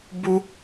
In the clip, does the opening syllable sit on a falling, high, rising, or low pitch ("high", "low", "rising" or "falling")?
high